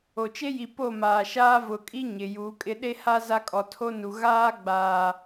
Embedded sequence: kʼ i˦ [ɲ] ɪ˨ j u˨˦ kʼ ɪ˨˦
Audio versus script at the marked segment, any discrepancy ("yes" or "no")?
no